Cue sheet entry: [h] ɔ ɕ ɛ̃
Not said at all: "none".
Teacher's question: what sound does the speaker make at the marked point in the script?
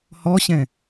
h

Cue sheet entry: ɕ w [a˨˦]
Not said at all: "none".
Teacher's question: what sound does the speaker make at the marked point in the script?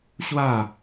a˥˧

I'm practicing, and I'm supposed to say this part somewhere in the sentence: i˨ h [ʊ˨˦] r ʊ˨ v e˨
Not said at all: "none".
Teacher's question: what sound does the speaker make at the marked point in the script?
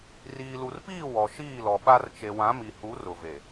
u˨˦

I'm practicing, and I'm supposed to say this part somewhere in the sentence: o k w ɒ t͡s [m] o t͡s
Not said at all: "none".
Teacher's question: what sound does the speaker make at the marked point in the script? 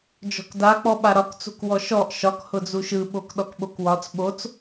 ɓ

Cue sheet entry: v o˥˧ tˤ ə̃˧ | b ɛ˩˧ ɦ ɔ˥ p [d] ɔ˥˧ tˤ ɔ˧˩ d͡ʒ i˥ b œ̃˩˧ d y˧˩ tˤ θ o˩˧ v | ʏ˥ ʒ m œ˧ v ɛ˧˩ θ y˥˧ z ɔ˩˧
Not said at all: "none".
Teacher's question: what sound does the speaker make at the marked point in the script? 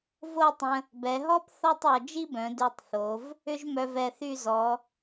θ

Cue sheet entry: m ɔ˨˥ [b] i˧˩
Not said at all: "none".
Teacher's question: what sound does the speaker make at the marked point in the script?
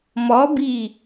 b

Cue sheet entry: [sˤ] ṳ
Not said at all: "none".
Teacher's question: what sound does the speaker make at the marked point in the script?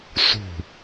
s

